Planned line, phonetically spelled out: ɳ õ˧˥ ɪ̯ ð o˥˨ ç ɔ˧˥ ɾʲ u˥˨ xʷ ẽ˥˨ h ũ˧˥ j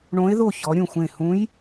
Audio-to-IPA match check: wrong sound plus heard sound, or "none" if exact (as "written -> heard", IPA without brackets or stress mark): u˥˨ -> ũ˥˨